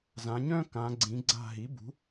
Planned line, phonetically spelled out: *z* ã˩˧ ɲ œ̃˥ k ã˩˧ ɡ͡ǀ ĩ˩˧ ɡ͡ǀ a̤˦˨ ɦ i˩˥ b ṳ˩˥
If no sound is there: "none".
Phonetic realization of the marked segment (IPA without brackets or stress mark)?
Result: z